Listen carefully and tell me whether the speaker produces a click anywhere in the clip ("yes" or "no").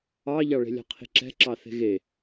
yes